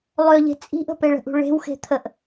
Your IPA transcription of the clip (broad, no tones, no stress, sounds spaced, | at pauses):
lˠ ø ʎ e̤ t͡sʼ i̤ ʔ ə̤ p e ɭ ə̤ ʔ ṳ ɭ e̤ w x e̤ t̪ʰ ə ʔ